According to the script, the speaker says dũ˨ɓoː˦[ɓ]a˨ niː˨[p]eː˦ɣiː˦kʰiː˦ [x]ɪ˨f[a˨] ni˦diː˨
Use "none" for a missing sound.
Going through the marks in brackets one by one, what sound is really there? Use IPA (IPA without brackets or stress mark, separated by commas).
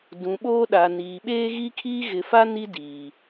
ɗ, ɓ, ɣ, a˦